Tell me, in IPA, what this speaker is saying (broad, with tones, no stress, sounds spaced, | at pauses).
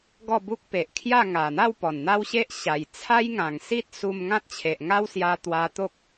ɡ ɔ˥˧ b u˦ k̚ p e˨ ʔ kʰ j a˥˧ ŋ a˨˩ n̪ a˥˧ w p ɔ˨˩ n n̪ a˦ w ɕ e˦ ʔ ɕ a˨˩ j t͡sʰ a˦ j ŋ ã˨˩ ŋ s i˦ t̚ s u˧ m ŋ ã˦ t̚ t͡ɕʰ e˨ ʔ ŋ a˦ w s j a˧ t̪ w a˧ t̪ o˦ k̚